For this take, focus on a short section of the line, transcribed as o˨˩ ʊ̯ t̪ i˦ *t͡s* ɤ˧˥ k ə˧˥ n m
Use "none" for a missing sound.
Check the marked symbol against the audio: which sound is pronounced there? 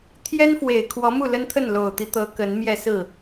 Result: t̪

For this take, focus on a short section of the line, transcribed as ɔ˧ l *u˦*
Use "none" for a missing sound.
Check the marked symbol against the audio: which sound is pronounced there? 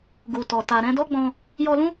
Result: ũ˦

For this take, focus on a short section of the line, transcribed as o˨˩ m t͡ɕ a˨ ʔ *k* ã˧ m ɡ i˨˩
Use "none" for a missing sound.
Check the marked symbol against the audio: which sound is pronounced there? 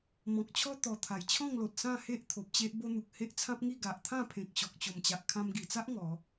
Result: kʰ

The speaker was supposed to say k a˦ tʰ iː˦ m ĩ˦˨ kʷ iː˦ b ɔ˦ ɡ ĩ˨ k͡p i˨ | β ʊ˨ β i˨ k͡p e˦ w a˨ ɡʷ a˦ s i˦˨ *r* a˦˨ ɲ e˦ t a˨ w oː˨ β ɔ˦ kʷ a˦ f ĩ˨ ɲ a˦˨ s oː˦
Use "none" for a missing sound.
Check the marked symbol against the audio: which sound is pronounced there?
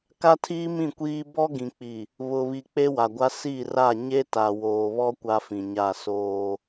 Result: r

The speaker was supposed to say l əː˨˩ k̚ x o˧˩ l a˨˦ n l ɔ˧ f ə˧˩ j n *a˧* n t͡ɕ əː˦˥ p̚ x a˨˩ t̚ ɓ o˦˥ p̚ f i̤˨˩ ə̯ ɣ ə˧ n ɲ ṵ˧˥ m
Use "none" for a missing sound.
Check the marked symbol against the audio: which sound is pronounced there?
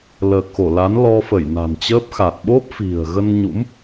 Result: a̤˨˩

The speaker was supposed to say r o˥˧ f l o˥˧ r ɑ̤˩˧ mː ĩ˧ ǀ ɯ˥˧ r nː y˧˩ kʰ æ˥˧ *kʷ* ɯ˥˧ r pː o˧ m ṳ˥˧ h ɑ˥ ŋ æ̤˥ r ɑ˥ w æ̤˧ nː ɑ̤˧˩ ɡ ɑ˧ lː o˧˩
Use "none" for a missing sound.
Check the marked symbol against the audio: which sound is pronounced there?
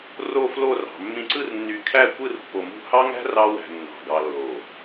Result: kʷ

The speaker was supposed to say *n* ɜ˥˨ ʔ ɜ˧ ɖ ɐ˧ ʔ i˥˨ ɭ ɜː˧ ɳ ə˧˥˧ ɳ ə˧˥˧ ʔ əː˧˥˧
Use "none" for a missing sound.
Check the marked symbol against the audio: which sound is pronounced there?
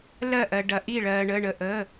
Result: l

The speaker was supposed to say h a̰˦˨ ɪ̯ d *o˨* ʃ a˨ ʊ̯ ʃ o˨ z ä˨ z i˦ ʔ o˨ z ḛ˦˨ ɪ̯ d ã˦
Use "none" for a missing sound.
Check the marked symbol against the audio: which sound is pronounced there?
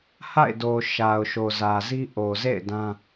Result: o˨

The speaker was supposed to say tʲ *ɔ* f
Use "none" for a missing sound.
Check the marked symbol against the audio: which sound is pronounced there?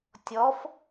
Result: ɔ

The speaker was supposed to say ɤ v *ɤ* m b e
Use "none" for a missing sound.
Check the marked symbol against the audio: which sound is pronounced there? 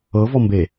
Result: ɔ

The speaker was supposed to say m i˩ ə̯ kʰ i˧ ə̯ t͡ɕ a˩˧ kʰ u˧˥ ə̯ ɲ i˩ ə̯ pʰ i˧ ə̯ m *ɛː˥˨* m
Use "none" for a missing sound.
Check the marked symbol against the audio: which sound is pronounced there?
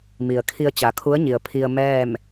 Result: ɛː˥˨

